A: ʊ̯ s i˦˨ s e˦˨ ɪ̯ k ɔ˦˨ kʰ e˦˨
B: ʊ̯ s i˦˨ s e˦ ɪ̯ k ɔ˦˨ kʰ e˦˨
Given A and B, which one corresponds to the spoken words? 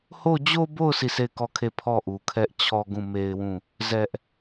A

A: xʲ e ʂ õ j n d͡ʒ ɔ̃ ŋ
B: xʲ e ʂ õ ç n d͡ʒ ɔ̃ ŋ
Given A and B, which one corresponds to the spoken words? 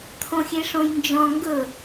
A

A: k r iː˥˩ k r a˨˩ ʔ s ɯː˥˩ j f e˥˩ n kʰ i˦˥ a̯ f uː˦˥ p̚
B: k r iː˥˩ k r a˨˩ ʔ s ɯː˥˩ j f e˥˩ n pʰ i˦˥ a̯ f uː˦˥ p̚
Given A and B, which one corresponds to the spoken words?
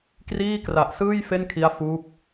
A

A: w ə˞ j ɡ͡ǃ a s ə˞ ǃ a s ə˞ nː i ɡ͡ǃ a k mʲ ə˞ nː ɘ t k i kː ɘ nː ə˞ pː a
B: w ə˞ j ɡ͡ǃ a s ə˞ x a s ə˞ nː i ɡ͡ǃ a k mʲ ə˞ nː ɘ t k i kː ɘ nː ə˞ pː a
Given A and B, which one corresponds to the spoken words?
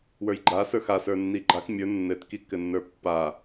B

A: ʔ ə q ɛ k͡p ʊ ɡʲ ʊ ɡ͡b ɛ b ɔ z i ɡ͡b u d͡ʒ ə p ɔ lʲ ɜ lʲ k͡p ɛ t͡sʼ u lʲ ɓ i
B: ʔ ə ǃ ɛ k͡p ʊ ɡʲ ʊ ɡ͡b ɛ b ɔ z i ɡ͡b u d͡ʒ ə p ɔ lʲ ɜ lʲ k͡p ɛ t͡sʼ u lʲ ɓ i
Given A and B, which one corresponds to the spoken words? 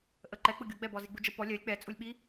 B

